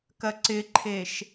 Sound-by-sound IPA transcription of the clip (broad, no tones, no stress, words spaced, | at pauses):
kɐǀɪǃʰeʃ